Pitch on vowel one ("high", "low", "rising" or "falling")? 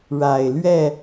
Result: low